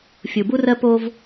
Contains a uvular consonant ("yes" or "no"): no